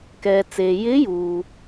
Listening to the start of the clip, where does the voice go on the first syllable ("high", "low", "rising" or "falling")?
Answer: low